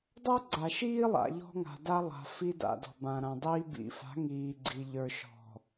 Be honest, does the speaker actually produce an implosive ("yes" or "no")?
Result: no